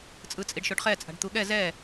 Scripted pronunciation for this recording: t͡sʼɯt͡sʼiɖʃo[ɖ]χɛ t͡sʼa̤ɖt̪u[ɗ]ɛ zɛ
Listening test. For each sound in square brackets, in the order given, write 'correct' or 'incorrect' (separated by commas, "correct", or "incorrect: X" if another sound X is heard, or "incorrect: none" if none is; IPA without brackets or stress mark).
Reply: correct, incorrect: ɠ